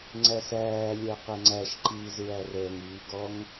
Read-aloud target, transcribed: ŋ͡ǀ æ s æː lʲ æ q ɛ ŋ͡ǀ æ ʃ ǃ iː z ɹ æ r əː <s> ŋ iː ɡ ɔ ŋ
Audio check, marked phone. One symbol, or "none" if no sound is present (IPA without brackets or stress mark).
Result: none